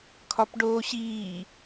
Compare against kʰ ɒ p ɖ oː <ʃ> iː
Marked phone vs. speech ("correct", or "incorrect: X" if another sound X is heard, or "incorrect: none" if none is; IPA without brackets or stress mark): incorrect: ɕ